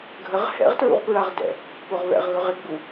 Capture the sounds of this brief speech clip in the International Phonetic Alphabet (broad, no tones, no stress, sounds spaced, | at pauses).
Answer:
ɡʱ ə ʁ h ɛ̰ ʁ t ɹ ṵ ʁ p ɹ a ʁ d ɛ̰ | p o ʁ β ɛ̰ ʁ ɣ ɵ ʁ ɪ ɡ͡b u